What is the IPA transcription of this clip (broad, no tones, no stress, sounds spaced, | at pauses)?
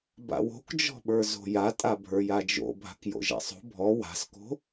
b a̰ w o̤ k d͡ʒ ɔ̤ ɓ ə˞ z o̤ j a tʼ a bʱ ə˞ j a d͡ʒ o̰ bʱ a̤ k j o̰ ʒ a̰ sˤ o̤ bʱ ɔ w a̤ s k o̤